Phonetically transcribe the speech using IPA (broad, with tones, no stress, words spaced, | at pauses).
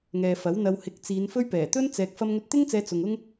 ŋɛː˨fɐ˨˥w n̪ɐ˨whɪ˨˥k̚ t͡siː˨˧nfɵ˥ɥpɛː˨˩ t̪ɵ˥n t͡sɛː˨k̚ fɐ˧mŋɵ˧t̚t̪ɪ˥ŋt͡sɛː˨˧ t͡sʊ˨ŋʊ˥ŋ